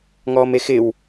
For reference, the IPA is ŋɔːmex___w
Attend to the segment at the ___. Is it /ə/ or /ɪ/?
ɪ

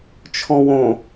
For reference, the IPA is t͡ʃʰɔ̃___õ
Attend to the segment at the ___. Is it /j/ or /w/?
w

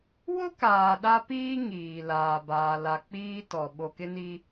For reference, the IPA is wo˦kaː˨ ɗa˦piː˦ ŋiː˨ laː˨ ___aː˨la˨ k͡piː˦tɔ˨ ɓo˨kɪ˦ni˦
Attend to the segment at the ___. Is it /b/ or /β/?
b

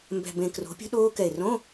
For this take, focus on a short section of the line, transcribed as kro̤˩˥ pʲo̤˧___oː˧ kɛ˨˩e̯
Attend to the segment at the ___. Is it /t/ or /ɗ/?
ɗ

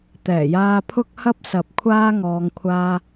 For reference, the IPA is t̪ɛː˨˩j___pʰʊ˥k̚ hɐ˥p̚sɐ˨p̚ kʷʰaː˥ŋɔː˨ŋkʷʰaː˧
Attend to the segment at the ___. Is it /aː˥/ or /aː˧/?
aː˧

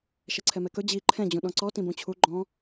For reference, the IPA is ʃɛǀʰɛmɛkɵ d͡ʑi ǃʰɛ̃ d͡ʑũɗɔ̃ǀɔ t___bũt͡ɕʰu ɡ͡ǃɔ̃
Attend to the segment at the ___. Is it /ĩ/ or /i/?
ĩ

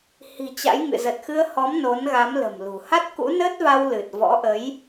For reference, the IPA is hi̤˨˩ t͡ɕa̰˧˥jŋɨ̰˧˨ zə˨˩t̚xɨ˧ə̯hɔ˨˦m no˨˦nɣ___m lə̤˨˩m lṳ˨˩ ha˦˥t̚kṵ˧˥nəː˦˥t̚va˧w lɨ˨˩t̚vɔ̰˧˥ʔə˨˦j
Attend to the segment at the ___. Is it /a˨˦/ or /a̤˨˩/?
a˨˦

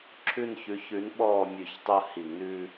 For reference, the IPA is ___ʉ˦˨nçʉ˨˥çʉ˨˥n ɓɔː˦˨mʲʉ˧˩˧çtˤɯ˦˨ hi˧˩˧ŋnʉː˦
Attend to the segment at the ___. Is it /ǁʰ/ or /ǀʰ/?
ǁʰ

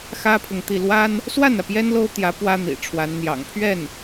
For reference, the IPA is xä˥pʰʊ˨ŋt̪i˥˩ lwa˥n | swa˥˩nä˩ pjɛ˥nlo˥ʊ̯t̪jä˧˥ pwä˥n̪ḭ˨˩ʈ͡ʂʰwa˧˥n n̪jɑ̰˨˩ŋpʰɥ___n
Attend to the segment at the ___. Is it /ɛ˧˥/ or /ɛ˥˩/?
ɛ˥˩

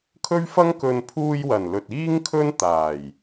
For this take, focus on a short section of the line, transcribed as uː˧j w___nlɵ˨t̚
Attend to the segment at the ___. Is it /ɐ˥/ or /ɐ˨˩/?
ɐ˨˩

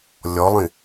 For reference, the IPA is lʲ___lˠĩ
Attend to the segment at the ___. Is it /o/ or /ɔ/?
ɔ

